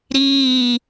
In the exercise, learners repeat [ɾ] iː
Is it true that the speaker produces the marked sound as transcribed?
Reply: yes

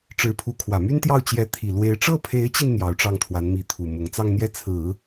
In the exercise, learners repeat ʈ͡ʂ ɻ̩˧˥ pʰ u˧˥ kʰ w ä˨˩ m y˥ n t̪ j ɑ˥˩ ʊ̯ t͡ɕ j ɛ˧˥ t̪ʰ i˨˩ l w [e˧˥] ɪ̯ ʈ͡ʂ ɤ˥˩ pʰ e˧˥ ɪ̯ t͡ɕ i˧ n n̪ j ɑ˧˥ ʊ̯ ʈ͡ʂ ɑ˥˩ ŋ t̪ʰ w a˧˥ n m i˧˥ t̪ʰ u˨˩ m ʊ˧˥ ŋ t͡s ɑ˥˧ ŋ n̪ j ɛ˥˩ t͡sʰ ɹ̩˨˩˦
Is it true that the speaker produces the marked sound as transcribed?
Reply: yes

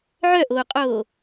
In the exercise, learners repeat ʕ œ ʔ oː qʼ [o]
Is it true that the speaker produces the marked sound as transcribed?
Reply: no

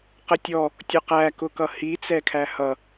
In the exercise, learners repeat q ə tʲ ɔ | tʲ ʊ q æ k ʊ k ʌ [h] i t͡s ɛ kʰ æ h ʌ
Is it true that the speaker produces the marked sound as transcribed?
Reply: yes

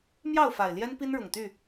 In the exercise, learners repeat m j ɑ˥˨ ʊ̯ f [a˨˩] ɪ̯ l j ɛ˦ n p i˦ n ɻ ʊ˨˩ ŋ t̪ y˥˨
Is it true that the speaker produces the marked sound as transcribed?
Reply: yes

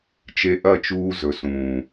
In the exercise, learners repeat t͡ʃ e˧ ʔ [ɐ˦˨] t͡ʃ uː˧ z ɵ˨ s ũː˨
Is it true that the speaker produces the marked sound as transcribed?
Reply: yes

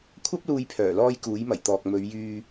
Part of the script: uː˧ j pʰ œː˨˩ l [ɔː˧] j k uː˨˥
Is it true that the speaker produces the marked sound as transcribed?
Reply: yes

